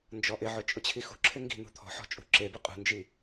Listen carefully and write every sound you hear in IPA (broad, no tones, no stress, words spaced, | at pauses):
nd͡ʒɔʔɪʕʊ t͡ʃʼʊt͡ɕʰixṳǁʰɪ ŋɡi̤ n̪ṳt̪ʰɔ̤ħɔ̤ t͡ʃʼṳǁebɨ qʼṳnd͡ʒi